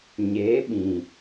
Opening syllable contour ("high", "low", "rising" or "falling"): rising